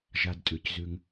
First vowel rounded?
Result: no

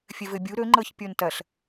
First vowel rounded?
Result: no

